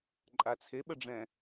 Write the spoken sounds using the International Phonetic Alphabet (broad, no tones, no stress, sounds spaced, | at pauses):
ǃʼ a t͡sʰ e ɓ ə ɖ͡ʐ ɛ̃